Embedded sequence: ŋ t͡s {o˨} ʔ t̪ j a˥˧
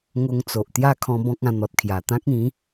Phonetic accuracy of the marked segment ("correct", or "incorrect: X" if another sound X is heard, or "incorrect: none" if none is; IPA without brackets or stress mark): correct